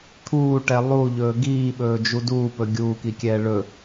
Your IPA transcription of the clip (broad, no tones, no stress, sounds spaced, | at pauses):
t̪ʰ uː ʈ ɛ lˠ u ʎ ɵː ɡ iː ɓ ɵː d͡ʒ u d uː p ɵ ɡʲ uː k i kʲ ɛː ɭ ɵ